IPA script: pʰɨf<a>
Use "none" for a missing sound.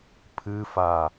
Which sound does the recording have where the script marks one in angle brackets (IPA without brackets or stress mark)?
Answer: a